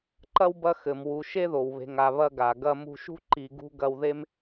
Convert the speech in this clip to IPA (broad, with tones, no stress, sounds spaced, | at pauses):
ǃ ɐ˥ w b ɐ˦ x ɘ˩ m w u˨ ʃ e˥ ð o˩ w β e̤˨ ŋ a˨ β ɐ˦ ɡ a˩ ɡ ɐ˦ m ṳ˦ ʃ ṳ˥ ǃ i˨ ɡ ṳ˥ ɡ ɐ˦ w ð e˥ m